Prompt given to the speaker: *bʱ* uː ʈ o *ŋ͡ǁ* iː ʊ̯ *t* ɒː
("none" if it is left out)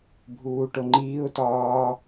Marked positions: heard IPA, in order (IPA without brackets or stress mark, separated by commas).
bʱ, ŋ͡ǃ, t